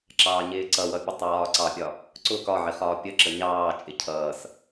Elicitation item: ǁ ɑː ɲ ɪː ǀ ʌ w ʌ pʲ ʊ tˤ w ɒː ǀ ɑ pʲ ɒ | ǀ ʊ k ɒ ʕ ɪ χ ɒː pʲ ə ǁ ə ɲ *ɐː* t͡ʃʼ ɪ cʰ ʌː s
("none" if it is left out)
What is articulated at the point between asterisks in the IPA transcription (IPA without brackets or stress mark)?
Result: ɑː